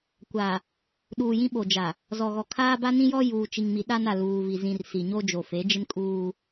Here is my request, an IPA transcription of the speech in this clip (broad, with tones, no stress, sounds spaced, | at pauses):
kʷ a˨ | ɗ uː˨ j ĩ˦ ɓ o˨ d͡ʒ a˨ | z ɔ˨ ɣ ɔ˨ kʰ aː˦ b a˦ n ĩ˦ j ɔ˦ j uː˨ t͡ʃ i˨ ŋ m i˨ ɗ a˦ n a˨ l uː˨ v i˨ z ĩ˨ r s i˨ ɲ o˦ d͡ʒ o˨ f e˨˦ d͡ʒ ɪ˦ n kʼ uː˦